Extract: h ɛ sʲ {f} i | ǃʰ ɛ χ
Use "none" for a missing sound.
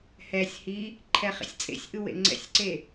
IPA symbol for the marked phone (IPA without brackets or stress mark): h